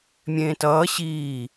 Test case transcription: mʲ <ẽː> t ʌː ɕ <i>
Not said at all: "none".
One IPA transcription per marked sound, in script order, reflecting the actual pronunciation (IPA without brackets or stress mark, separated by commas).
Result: ẽː, iː